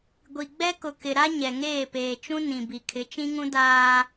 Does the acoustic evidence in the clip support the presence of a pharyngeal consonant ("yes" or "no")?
no